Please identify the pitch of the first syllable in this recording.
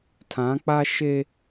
rising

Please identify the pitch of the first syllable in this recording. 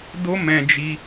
high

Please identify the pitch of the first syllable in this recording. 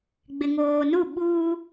low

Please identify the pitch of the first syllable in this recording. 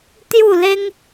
falling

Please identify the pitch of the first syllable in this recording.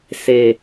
low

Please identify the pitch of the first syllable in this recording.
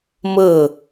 falling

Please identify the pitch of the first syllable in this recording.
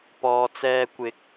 low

